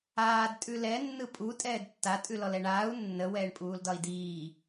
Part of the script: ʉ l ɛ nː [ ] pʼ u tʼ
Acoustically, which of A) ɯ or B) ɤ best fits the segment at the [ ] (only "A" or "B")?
A